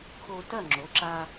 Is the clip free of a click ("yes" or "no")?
no